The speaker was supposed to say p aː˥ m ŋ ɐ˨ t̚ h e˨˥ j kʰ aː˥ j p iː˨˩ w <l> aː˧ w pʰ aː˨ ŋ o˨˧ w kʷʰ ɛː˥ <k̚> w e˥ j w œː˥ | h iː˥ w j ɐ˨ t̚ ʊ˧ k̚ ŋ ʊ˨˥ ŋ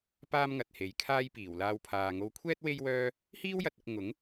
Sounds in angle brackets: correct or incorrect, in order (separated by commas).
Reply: correct, incorrect